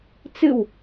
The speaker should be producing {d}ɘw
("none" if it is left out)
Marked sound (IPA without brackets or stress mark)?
t͡s